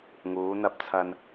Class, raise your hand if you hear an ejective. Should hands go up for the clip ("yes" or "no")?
no